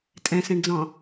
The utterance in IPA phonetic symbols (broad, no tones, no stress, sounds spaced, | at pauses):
tʼ ɛ̃ s ɛ̃ ɳ d͡z ɔ̃